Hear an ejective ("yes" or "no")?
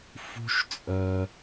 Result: yes